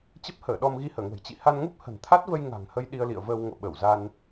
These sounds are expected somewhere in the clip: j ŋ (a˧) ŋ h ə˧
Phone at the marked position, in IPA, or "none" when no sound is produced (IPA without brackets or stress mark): a̤˨˩